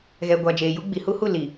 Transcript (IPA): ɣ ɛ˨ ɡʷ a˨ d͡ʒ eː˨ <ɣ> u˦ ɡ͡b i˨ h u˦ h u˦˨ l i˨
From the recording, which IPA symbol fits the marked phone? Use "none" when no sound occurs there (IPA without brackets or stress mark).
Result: j